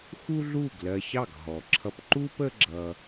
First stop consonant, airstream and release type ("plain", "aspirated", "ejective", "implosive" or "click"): plain